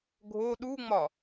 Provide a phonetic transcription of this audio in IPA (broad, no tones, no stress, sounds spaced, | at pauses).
ɡʱ o ɗ u ŋ͡m ɒ